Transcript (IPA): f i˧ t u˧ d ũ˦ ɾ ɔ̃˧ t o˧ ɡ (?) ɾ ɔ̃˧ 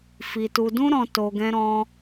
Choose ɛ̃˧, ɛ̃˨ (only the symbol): ɛ̃˧